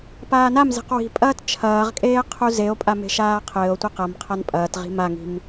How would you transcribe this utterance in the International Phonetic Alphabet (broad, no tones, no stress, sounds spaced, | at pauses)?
p aː n a m z e̤ q w i̤ pʼ ɐː t t͡ʃʰ ɐː ʁ kʼ eː qʰ u z e o̯ pʼ a m e̤ ʃ aː qʰ ɘː o̯ tʷ i q ɐ m qʰ a n pʼ ɐː t ʁ i̤ m a ŋ i̤ m